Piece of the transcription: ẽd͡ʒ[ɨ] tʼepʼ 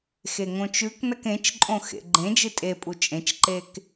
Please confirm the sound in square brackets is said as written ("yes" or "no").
yes